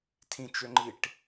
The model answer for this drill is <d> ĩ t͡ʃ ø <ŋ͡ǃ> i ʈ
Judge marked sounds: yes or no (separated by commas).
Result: no, yes